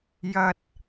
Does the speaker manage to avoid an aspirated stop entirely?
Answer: yes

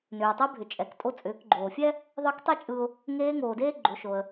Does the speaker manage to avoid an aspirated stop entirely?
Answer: yes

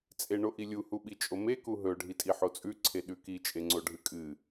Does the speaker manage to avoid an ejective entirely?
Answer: no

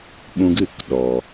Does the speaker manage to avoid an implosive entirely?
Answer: no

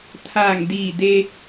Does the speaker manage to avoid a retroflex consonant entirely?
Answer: yes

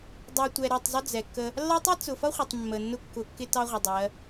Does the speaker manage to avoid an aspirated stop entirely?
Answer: yes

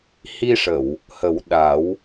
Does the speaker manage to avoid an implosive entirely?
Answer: no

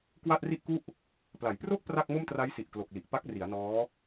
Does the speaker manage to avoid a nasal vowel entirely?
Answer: yes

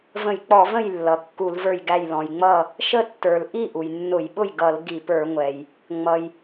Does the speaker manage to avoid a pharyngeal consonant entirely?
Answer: yes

